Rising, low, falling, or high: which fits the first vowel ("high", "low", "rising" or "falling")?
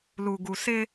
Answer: low